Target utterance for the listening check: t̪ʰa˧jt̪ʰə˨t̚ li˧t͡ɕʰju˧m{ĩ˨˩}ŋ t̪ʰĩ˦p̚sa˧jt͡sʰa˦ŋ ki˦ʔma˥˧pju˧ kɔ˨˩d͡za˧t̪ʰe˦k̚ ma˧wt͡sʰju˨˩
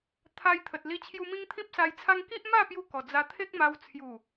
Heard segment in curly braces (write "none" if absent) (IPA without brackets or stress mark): ĩ˦